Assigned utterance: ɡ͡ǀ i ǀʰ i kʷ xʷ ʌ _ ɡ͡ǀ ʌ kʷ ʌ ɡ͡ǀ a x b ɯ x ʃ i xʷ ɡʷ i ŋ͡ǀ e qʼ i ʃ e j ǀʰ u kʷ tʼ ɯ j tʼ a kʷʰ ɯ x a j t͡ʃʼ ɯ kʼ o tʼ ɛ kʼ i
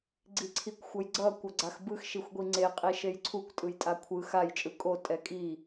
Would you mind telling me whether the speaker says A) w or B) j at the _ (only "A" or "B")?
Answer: B